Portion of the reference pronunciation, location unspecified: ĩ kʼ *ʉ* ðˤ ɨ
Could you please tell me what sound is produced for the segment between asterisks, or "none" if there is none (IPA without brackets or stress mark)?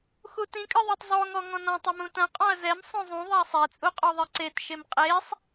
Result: ɨ